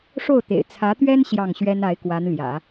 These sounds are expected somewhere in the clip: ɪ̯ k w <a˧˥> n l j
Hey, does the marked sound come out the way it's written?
yes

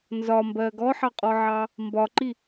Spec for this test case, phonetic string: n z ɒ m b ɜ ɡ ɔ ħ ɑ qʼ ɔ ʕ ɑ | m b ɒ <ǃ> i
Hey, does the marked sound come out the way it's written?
yes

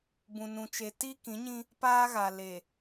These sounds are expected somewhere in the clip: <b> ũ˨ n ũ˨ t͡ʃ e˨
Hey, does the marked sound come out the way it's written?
yes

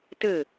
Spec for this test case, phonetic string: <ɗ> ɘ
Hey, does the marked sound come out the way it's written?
no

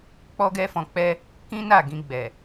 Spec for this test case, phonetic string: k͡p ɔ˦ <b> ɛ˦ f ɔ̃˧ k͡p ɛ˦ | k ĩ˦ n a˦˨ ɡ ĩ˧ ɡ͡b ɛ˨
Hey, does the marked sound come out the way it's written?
no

